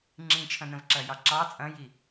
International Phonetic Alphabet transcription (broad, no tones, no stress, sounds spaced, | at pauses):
ŋ͡ǁ ĩ t͡ʃʰ ɐ̃ n ə̃ v ǁ ɐ j ɑ ǁ ɑ t͡sʼ ɐ̃ j i